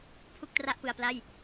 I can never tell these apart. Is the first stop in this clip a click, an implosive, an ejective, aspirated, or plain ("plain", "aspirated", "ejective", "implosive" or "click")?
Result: aspirated